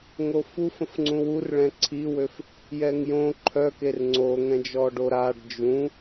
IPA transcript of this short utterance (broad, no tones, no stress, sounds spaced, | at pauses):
ŋ o f u f ə̃ f ŋ͡ǀ ũ w u r ɭ ɛ̃ ǀʰ i w ø f | j ɛ ŋ j õ ǃʰ œ k e r ŋ͡ǀ o ŋ ɛ̃ d͡ʒ ɔ ɖ o ɾ a ɖ d͡ʒ ũ